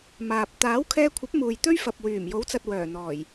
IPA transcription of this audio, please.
m aː˨ p̚ t̪ aː˨˥ w kʰ ɛː˧ kʷʰ ɐ˨˥ p̚ m uː˨ j t̪ ɵ˥ ɥ f ɐ˨ p̚ w yː˨˩ m j o˨˥ w t͡s ɐ˨ t̚ w œː˨˩ n̪ ɔː˨˩ j

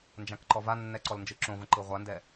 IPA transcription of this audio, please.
n d͡ʒ ã k ǃ ɔ v a nː ɛ ǀ ɔ l n d͡ʒ ɯ ǁ õ v ə̃ ǃ ɯ ʁʷ a n d ɛ

